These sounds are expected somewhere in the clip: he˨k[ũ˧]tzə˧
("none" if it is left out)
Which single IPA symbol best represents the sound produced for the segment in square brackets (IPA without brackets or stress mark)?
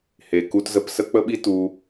u˧